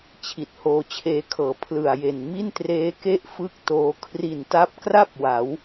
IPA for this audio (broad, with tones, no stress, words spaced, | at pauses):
t͡ɕʰi˨˩t̚hoː˧t͡ɕʰeː˧kʰɤː˩˦ pʰlɯ˨˩a̯je˨˩n mi˥˩ntreː˦˥ke˥˩ʔ fɯ˥˩k̚ toː˧ kʰri˨˩nta˦˥p̚kra˥˩p̚ wa˩˦w